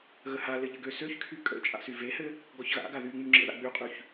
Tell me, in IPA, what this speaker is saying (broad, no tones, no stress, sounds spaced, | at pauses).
ɣ ə h a l ɘ ʎ ɘ ɡ ø s ø ç kʰ y kʼ ə̰ t͡ʃʼ a̰ s y v e h ɘ | ɡ ɔ ç ɣ a̰ ɡ a ð y ŋ͡m y ŋ͡ǁ ə̰ ð a̰ ɡ͡b y qʼ y ç